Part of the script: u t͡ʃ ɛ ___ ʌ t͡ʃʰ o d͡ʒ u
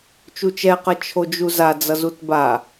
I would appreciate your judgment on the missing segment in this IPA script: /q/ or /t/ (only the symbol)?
q